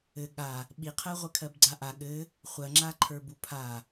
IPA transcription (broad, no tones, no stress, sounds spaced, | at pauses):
ɘ ɠ a | ɓ i qʰ ɜ ʁʷ ɘ kʰ ɜ b ɡ͡ǀ a ʔ a ɠ ɘ | χʷ ɜ ŋ͡ǁ a ǃʰ ə˞ b u pʰ a